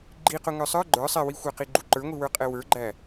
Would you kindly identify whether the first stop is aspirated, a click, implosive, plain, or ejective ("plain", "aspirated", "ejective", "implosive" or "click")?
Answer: click